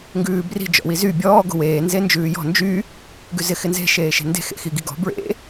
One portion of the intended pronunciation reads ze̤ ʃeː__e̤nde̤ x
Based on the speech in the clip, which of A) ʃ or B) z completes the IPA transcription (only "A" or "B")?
A